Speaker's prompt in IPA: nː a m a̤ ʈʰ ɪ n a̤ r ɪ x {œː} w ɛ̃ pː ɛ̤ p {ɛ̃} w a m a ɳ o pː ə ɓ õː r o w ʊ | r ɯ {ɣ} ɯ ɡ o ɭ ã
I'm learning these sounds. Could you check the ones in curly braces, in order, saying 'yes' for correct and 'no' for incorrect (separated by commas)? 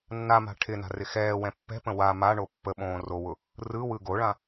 no, no, no